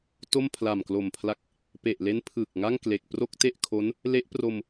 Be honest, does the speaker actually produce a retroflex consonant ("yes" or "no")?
no